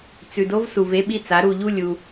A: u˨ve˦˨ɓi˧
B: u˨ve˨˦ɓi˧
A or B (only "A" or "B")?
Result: B